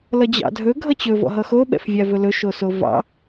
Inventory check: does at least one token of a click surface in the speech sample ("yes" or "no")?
no